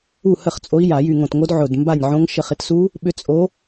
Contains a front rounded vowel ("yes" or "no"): yes